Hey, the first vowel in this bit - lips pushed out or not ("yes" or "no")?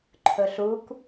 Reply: yes